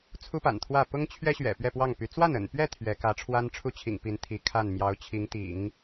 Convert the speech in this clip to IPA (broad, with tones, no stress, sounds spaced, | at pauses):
t͡sʰ u˥ p a̰˨˩ n t̪ʰ w ä˥˩ p ʊ˥ ŋ t͡ɕʰ ɥ ɛ˥ ɕ ɥ ɛ̰˨˩ p ɥ ɛ˥˧ p w ɑ˥˩ ŋ p y˧˥ t͡s w a˥˩ n ə̰˨˩ n p ɥ ɛ˥˩ t̪ʰ ɥ ɛ˧˥ k ä˧˥ ʈ͡ʂʰ w a˥ n ʈ͡ʂʰ u˥˩ t͡ɕʰ ḭ˨˩ ŋ p i˧˥ n t̪ʰ i˧˥ kʰ a˥˩ n m j ɑ˧˥ ʊ̯ t͡ɕʰ i˧˥ ŋ t̪ ḭ˨˩˦ ŋ